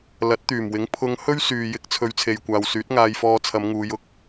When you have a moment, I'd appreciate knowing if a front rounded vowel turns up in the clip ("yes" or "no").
yes